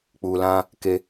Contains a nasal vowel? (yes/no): yes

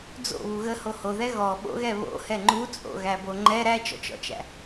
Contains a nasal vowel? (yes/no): no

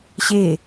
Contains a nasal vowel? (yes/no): no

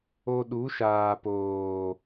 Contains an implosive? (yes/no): yes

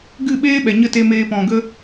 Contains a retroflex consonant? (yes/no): no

